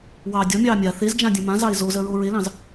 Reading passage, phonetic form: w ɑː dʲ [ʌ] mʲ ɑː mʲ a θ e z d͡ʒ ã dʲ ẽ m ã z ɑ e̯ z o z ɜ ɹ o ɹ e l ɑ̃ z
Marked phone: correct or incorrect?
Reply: incorrect